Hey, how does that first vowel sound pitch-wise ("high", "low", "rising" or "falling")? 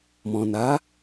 low